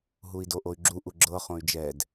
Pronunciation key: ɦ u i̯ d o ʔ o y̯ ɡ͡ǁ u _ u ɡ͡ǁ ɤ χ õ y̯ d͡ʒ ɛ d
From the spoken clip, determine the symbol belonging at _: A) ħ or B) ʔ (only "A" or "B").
B